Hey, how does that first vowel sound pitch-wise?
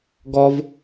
high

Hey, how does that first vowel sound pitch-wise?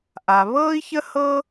low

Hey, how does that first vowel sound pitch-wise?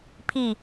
falling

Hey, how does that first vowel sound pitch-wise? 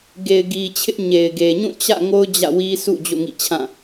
low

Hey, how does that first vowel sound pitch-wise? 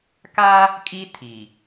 high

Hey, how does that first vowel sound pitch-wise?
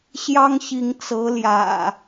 high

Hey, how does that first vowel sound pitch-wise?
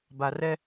low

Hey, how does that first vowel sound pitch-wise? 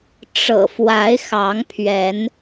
low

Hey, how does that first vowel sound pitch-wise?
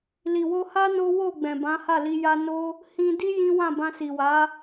low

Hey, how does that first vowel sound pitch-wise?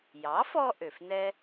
rising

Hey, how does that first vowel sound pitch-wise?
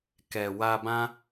low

